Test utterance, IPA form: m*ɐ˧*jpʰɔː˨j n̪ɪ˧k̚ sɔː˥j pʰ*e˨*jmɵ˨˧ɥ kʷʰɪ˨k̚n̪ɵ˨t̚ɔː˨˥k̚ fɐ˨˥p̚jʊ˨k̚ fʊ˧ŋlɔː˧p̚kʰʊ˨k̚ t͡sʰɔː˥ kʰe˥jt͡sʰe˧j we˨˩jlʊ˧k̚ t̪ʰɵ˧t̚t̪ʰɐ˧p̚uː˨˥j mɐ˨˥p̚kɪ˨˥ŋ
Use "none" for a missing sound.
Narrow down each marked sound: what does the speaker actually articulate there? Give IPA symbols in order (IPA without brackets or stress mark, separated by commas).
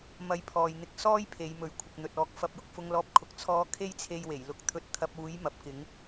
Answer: ɐ˧, e˨˧